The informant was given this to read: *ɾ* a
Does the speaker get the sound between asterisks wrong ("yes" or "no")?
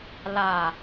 yes